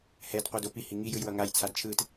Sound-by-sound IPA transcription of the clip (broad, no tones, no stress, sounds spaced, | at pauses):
h ɛ d qʷ ɯ d o p i h i ŋ i j ɯ j w ʌ ŋ a j t͡sʰ a d t͡ʃʰ ɯ t